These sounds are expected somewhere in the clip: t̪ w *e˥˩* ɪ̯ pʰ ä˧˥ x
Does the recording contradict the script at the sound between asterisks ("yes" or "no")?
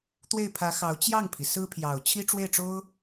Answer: no